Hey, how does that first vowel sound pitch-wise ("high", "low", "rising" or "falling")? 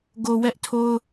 low